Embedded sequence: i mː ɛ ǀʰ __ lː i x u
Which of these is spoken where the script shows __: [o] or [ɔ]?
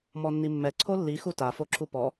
o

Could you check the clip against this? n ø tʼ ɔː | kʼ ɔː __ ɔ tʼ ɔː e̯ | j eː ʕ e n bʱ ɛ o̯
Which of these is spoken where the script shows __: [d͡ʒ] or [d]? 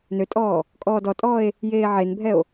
d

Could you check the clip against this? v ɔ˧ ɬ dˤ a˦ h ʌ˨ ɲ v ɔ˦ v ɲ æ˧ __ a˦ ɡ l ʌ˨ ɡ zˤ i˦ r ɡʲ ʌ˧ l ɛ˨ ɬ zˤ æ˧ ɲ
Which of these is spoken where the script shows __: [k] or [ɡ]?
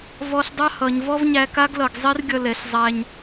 k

